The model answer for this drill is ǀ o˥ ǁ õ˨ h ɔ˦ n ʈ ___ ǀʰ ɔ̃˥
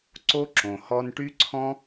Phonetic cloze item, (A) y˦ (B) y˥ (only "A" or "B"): B